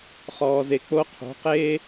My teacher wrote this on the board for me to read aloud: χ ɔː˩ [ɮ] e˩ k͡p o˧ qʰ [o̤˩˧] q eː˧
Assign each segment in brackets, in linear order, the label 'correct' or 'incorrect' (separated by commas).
incorrect, correct